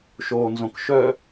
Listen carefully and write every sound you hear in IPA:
ʃ oː n z õ k ʃ œ

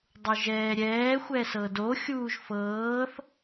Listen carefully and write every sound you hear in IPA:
dˤ u ʒ ɛː ɾʲ ɛː xʷ ɛ s ɤ d o xʲ uː ʒ f ɤː θ

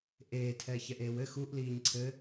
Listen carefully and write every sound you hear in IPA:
ʔ eː tʰ ɛ ç ɛ ʔ eː w ɘ x u ʔ l iː ɲ ǀʰ ɘ

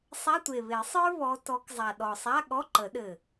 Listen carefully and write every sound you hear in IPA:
sˤ a˧˥˧ tʷ e˨˩ β e˨˩˦ sˤ ə˞˥ β ɔ˨˦ t ɔ˨˦ k zˤ a˨˩ ɗ ɔ˨˩ sˤ a˧˥˧ ɠ ɔ˧˥˧ ǃ ə˨˩˦ ɗ ɘ˨˩

